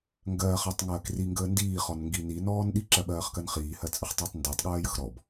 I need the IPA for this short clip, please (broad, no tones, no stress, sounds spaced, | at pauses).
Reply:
ŋ ɡ ɜː χ ɜ tˤ ŋ ɜː k r i ŋ ɡ əː n d iː χ ɔ n ŋ ɡ i n i n ɔː n ɗ i ǁ ɜ ɓ ɜː χ k ɜ n χ iː h ɜ t͡sʼ ə χ tˤ əː tˤ n d əː tˤ ɠ ɜː j ə x ɾ ɔ b